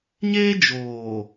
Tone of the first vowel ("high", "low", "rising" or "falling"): high